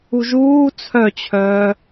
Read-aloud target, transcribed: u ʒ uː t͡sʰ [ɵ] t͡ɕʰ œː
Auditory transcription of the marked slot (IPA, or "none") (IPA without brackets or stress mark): œ